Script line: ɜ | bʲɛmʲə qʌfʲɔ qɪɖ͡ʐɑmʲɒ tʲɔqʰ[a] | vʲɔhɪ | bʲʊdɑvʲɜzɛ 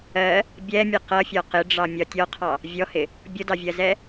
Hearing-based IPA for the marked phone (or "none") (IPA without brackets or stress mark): ɑ